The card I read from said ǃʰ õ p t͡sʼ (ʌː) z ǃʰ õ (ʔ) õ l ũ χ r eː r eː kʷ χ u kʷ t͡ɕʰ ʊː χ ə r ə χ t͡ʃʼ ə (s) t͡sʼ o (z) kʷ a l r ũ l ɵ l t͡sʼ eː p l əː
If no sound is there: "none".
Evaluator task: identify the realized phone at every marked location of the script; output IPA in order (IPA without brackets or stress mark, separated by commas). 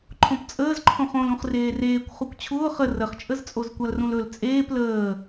əː, χ, z, z